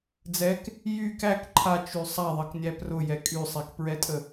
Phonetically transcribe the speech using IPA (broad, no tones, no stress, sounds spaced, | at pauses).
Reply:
d͡z ɛ k | j y k æ k ǃʰ a t͡ʃ y sˤ a ðˤ ʌ k nʲ æ p r ʊ j ɛ kʼ y sˤ e k p ɹ ɛ tʼ ə